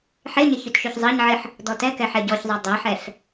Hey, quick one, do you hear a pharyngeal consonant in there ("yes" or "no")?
yes